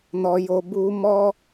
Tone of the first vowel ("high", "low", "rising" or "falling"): low